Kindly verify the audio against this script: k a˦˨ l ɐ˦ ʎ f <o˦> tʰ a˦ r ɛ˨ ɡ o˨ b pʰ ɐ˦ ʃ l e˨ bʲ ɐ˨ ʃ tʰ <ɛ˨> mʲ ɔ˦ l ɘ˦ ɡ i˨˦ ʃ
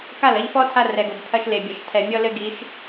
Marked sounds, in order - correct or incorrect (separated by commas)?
incorrect, correct